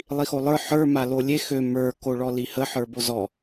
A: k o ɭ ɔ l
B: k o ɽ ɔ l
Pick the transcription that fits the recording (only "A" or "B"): A